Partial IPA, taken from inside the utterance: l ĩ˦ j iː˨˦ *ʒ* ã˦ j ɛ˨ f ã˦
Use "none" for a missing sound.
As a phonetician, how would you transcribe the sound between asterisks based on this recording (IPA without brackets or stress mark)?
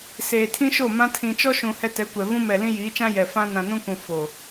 t͡ʃ